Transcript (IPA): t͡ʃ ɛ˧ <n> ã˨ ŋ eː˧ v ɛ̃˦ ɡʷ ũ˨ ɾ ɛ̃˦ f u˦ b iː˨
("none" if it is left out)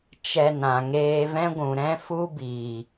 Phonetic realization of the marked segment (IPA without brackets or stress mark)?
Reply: n